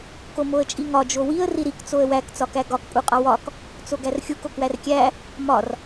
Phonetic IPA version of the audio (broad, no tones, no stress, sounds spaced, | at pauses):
k o m o ə̯ t͡ʃʼ i ŋ ɒ d͡ʒ o w i ə̯ r i ɾ i k t͡s o ə̯ w æ k t͡s ɒ k æ ɡ ɒ k pʼ u qʼ ɒ w ɒ k | t͡s o ɡ æ r xʲ u k o k w æ r kʲ æ | m ɒ r